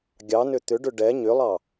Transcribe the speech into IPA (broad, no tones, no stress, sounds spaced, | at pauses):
ɡʲ ɑ n ʏ t̪ ʏ ɖ ʏ ɖ ɛ ɲ ʏ lˠ ɑ